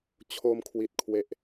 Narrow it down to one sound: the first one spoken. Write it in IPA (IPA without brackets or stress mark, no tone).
t͡ɕʰ